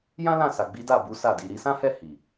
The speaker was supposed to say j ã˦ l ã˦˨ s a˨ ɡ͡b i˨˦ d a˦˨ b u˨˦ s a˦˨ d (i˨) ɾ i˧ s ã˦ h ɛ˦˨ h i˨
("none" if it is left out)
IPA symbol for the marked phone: i˧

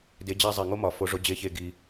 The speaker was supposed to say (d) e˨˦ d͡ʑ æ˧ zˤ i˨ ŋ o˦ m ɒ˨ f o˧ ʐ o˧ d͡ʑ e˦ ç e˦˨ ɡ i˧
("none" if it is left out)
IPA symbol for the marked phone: d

